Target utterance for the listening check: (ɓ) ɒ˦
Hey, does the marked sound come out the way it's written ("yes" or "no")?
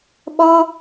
yes